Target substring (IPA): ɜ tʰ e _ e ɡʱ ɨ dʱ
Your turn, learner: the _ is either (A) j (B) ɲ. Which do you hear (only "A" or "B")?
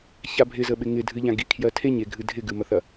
B